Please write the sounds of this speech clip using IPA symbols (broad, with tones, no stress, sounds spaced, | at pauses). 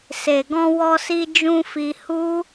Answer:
s e˨ ɡ ɔ̃˧ w ɔ˧ s i˧ d͡ʒ ũ˧ f i˧ h u˦